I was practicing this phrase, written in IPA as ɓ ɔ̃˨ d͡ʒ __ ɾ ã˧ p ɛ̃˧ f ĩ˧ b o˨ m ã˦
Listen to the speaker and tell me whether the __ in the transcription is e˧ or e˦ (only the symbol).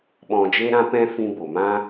e˧